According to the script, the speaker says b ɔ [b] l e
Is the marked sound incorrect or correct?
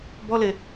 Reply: incorrect: none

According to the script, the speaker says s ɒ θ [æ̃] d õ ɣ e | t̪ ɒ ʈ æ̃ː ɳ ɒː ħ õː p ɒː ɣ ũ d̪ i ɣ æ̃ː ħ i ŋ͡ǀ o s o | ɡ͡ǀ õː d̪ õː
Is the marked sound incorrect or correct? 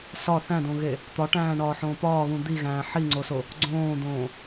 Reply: correct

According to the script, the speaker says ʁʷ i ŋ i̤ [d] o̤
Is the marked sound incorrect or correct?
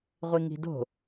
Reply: correct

